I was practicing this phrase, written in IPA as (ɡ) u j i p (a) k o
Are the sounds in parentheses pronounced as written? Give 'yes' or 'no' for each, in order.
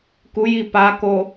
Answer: no, yes

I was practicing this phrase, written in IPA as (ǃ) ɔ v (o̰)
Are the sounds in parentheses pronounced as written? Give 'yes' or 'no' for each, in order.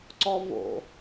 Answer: no, yes

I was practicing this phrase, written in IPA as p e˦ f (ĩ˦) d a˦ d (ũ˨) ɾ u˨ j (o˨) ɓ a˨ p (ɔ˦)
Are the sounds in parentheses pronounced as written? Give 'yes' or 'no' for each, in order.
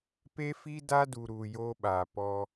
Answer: no, no, no, yes

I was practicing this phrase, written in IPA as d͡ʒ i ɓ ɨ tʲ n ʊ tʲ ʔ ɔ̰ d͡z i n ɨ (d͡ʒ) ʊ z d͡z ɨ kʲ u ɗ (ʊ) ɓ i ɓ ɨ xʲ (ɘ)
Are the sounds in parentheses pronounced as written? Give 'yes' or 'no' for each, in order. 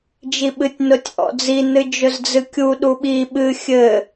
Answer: yes, no, yes

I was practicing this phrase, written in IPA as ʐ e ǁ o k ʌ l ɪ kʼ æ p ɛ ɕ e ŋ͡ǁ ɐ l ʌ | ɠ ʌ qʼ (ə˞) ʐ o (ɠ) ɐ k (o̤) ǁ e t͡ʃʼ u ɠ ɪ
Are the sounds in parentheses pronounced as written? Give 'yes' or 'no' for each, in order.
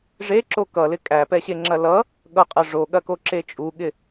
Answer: no, yes, no

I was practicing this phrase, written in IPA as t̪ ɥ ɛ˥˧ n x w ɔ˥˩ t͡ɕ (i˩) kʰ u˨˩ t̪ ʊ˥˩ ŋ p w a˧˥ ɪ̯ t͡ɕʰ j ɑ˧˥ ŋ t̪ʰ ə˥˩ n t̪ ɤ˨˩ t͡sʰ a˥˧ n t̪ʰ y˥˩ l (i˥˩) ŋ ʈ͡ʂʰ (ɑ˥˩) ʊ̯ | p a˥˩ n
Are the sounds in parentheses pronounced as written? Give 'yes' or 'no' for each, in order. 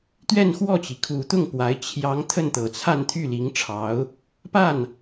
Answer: yes, no, no

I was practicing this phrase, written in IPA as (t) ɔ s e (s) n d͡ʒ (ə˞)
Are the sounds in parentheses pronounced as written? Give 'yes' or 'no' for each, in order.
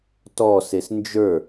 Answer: yes, yes, yes

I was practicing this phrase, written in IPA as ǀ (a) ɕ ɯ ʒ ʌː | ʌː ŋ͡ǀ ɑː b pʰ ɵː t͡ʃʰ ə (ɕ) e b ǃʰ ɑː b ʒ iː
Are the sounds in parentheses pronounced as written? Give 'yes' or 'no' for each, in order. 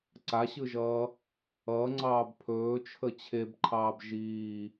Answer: yes, no

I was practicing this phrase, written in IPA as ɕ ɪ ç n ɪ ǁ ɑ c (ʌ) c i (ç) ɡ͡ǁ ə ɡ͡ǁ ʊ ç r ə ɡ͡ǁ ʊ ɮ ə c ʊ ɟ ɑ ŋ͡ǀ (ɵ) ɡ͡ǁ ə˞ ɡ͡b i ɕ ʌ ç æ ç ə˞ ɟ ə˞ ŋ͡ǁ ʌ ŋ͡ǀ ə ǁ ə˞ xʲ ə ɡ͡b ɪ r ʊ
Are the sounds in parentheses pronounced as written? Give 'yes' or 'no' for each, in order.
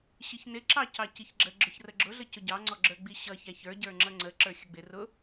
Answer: no, yes, no

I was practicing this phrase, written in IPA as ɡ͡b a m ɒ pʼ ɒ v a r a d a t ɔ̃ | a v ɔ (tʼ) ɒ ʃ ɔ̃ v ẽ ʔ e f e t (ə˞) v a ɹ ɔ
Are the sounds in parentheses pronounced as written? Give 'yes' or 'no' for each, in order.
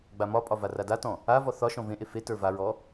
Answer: no, yes

